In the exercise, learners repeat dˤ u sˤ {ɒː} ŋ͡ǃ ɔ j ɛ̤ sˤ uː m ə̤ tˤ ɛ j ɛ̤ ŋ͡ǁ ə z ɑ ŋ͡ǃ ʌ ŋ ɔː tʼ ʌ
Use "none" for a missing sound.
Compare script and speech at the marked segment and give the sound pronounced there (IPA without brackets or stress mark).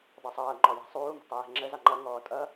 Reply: ʌː